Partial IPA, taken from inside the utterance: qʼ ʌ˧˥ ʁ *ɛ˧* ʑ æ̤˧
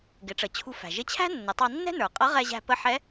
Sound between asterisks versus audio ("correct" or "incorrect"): correct